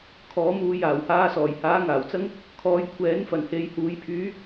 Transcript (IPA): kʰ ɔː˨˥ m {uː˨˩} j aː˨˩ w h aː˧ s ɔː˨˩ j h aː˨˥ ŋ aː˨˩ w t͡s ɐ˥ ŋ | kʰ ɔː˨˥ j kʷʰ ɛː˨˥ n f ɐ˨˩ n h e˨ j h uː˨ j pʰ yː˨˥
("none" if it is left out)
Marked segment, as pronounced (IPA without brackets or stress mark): uː˧